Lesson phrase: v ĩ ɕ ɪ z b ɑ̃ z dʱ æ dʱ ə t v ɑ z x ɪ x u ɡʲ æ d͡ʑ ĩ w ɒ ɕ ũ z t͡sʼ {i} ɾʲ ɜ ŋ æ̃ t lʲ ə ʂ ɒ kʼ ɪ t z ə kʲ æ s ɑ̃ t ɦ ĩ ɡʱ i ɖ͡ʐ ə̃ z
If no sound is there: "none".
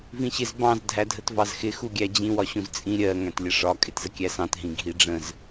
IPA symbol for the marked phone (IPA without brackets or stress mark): ĩ